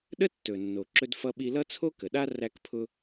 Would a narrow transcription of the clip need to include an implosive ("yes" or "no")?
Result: yes